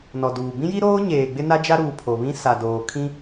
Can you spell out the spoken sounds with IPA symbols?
n ɔ˨ d uː˨ b ĩ˦ j i˦ ɾ oː˦ ɲ eː˨ ɡ͡b ɪ˦ n a˦ d͡ʒ a˦ ɾ uː˨ pʰ o˨ β ĩ˦ s a˨ d oː˨ kʰ ĩ˦

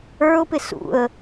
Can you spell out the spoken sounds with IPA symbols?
ə˞ ʊ̯ p ɪ s ṵ ə̯

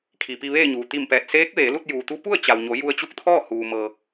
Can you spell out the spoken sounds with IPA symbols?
kʰ i˩ p i˧ ʋ eː˥˨ ɲ uː˩ t̪ i˧˩ m p ɛː˧˩ t̚ s eː˧˥ k̚ ʋ eː˩˧ l u˥˨ t̚ j uː˩ t̪ u˧˥ p u˥˨ ə̯ t͡ɕ a˩ w ɲ o˩˧ j u˧ ə̯ t͡ɕ u˧˥ k̚ t̪ʰ ɔː˥˨ h uː˩ m ɤː˩

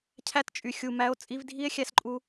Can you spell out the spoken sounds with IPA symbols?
cʰ æ˧ t t͡ʃʼ y˨ xʲ u˨ m æ˧ o̯ t͡sʼ i˧ v dʱ i˦ e̯ xʲ æ˧ s ǃʼ u˧

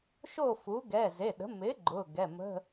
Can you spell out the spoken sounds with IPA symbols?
ʃ o˥˨ f u˩˥ ɡ ɛ˩˧˩ z e˩˧˩ ɗ ə̤˩˥ m ɪ˩˥ ɡ͡ǃ ʊ˩˧˩ ɡ ɛ˩˧˩ m ə̤˧˥˧

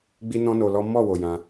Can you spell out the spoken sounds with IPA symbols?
ɡ͡b i˦ n ɔ̃˦ n o˧ l ɔ˦ m ɔ˦˨ w o˨ j ã˧

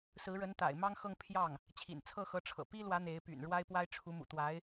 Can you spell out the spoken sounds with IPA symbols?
s ɹ̩˧˥ ɻ ə˧˥ n t̪ a̰˨˩ ɪ̯ m ɑ˥ ŋ x ɤ˥˧ ŋ pʰ j ɑ˥˩ ŋ | t͡ɕʰ ḭ˨˩ n t͡sʰ ɤ˥˩ x ɤ˧˥ ʈ͡ʂʰ ɤ̰˨˩ p i˥ l w ä˧˥ n̪ e˧˥ ɪ̯ p y̰˨˩ n ɻ w a˥ ɪ̯ p w a˥ ɪ̯ ʈ͡ʂʰ u˧˥ m ṵ˨˩ t̪ w a˧˥ ɪ̯

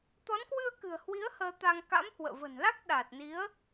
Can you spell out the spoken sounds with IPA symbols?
t̪ ɔ˨˦ n k w ɨ˧ ə̯ k ɨ̤˨˩ ə̯ h w i˨˦ ə̯ h əː˧ t̪ a˧ ŋ k a̰˧˥ m h w ə̰ː˧˨ v ə̤˨˩ n l a˦˥ k̚ ɗ aː˨˩ t̚ n i˨˦ ə̯

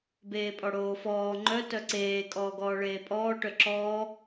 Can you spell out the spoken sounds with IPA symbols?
b eː pʼ ɔ ɽ oː f ɔː ŋ͡ǃ œ t œ ǀ eː kʼ ɔː ɡ ɔː ɭ eː pʼ ɔː ʈ œ ǁ ɔː

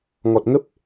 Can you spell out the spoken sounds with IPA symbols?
ŋ ɔ˨˩ t̚ ŋ ə˦˥ p̚

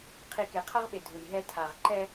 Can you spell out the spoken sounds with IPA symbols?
qʰ i˨ k e˨ qʰ ʌ˦ ʁ ɓ e˨ dʱ u˨ j ɦ ɛ˦ tʰ a˨ ʁ ǃ ɛ˦

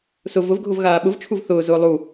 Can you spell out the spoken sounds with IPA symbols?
s ʊ v ʊ v ɡʱ ʊ v ɣ aː ɓ ʊ v t͡ʃʰ u v θ ʊː z ʊː lˠ u

